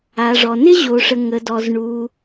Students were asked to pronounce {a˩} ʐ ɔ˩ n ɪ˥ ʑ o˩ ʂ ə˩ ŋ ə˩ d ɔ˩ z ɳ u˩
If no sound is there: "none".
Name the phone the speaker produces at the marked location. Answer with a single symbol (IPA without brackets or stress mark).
a˩